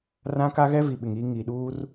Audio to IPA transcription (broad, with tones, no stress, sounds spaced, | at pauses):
r ã˦ k a˦ ɣ ɛ˦ v i˨ ɓ ɪ˨ ŋ iː˦ ŋ iː˨ ɗ uː˦ r